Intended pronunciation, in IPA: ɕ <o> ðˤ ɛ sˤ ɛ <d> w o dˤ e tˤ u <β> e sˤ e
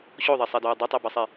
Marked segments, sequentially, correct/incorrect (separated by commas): correct, correct, incorrect